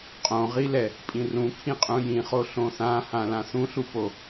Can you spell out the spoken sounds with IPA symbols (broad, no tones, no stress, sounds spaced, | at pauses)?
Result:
qʼ õ ʁ i l ɛ | pʼ ĩ r ũ kʰ ĩ qʼ ũ j ĩ χ o ɬ õ θ ã h ã l ã θ ũ ɬ u p o